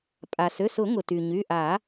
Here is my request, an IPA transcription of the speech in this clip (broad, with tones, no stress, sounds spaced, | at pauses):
pʼ a˩ s ø˩˧˩ s ʊ˨˩˦ ŋ ʊ˩ t y˩ ɲ y˩˧˩ ʔ a˨˩˦